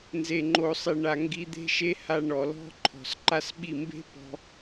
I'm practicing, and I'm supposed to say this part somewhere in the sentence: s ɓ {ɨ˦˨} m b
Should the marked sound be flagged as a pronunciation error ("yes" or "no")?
yes